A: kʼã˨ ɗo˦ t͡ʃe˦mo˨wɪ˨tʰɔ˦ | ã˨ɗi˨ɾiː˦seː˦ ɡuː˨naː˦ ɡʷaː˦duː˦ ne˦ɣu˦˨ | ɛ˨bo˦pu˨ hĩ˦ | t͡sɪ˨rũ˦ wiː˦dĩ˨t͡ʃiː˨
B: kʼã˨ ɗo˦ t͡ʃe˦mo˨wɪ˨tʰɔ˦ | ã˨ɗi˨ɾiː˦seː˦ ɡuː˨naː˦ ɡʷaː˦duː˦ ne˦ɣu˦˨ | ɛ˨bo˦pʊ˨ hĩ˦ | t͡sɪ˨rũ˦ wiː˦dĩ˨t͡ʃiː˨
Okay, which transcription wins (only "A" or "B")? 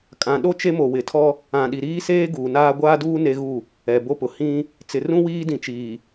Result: B